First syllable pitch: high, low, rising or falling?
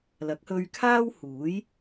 rising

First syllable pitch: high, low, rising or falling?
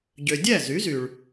low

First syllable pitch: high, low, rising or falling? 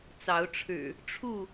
rising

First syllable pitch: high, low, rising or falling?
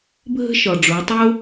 high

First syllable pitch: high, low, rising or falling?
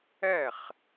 falling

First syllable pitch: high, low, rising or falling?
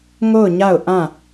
falling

